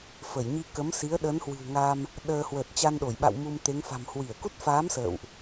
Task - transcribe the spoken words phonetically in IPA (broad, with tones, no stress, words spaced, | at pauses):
fə˧˩j ɲi˧kə˨˦msi˨˦ə̯ ɗə˨˦nhwɨ̤˨˩wŋa˧m | ɗəː˧ hwəː˨˩t̚t͡ɕa˧nɗo˧˩jɓa̰˧˨w mu˧mt̪e˨˦ŋ fa̤˨˩m hwi˧˩ə̯ku˦˥t̚faː˨˦m sə̰ː˧˨wʔ